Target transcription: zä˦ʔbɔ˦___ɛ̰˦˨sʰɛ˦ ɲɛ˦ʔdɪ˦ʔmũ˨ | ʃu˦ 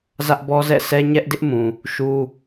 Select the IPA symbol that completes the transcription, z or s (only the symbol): z